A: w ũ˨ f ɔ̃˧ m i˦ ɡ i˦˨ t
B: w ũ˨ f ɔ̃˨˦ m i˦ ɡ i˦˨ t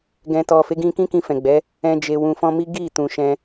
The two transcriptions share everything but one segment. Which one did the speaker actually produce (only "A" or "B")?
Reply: A